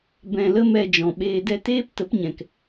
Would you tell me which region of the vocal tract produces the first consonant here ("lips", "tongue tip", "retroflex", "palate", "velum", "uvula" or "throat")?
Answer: lips